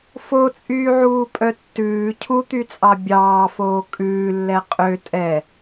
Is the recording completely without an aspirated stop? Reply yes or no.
no